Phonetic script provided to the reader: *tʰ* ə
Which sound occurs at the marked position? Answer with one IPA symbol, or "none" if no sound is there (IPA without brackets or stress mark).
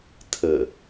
tʰ